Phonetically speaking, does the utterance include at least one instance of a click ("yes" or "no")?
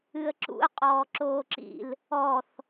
yes